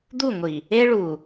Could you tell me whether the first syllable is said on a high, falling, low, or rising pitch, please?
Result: falling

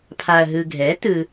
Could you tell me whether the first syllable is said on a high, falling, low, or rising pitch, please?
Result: low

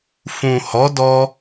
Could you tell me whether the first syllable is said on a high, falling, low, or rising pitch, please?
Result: low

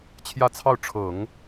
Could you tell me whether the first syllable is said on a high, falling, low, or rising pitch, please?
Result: falling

